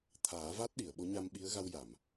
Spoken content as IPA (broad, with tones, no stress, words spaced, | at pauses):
t̪ʰaː˨˩˦ va˦˥t̚ɗi˨˩˨ə̯ ɓo˧˥ɲa˧mɓi˧˥ə̯ ɣa˧wja˨˩˨m